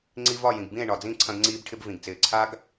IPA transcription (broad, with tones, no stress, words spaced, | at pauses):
ŋ͡ǀi˧vɒ˦˨jĩ˨ɡbĩ˦˨e̯ ɳɒ˨d͡zĩ˦˨ ǀʰɐ̃˧ɡŋ͡ǀiː˧bʈʰɪ˧b vĩ˨ɡt͡sɪː˨ǀʰa˦ɡ